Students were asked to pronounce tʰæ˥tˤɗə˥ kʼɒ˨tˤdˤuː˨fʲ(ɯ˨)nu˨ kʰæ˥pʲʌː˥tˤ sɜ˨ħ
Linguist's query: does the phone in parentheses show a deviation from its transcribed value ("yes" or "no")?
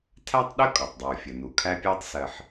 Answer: yes